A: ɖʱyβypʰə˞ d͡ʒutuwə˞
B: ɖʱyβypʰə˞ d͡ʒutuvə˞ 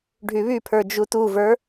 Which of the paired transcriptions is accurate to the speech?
B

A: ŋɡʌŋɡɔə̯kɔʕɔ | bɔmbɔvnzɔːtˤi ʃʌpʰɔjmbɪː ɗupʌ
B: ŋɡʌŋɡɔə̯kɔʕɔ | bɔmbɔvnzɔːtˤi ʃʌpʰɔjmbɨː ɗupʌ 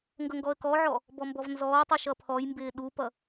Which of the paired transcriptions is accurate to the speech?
A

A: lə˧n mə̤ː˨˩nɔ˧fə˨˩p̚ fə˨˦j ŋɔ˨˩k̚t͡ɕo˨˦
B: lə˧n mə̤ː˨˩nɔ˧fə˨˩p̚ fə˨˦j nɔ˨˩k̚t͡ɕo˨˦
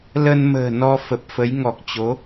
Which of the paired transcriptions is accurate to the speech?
A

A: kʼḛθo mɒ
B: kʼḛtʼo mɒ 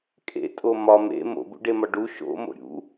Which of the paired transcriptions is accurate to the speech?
B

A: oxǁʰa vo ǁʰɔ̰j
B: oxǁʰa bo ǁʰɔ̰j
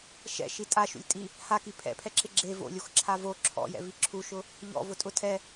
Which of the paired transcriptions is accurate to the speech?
A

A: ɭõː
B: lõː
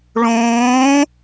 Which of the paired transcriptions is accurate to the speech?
A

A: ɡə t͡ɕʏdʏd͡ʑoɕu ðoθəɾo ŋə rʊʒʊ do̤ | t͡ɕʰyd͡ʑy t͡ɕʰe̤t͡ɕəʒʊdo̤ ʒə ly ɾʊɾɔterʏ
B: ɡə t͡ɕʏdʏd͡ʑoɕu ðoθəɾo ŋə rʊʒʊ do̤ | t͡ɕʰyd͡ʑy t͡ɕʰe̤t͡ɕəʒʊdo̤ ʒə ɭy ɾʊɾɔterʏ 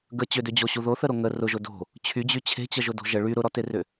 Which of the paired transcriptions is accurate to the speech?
B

